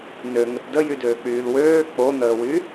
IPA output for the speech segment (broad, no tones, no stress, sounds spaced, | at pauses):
n ø ŋ ə t d ə j y d øː k͡p yː l w øː k͡p o n̪ əː w y